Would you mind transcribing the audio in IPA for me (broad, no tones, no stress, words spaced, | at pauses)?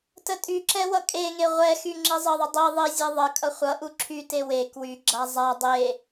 tətʼyǁɛ wʌkʼeŋe ʁʷɛxy ŋ͡ǁizˤəðˤə dˤi ðˤizʲe ðˤəkʼʌ χʷʌʔu ǁʰyte we kwyɡ͡ǁa zˤa dˤe